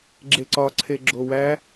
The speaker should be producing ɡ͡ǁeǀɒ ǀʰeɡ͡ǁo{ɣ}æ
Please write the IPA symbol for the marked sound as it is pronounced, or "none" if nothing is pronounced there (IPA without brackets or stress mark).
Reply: w